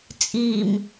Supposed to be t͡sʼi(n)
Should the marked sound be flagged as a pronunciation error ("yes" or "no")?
yes